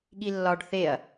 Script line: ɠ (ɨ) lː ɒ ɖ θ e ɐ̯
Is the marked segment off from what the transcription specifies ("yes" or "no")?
yes